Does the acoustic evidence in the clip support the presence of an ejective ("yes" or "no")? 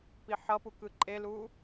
yes